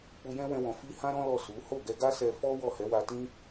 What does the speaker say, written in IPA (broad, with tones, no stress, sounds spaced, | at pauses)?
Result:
k͡p u˧ j ɛ̃˦ w ɛ̃˧ w ɔ̃˨ f i˧ h ã˦ ɾ ɔ̃˦ l ɔ˦˨ s u˨˦ h o˦˨ ɡ ɛ˧ ɡ a˦ s ɛ˧ f ɔ˦ w ɔ˦˨ h ɛ˨˦ w a˧ t ĩ˦